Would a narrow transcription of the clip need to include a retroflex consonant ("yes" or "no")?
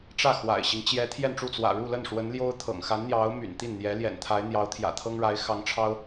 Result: yes